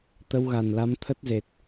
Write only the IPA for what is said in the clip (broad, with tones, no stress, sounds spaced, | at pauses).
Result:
t̪ ə˧ w ɣ a˨˩ n l a˨˦ m t̪ʰ ə˦˥ t̚ z e˨˩ t̚